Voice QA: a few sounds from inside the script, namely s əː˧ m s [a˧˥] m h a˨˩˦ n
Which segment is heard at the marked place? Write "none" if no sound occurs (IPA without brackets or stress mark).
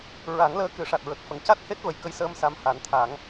a˧˥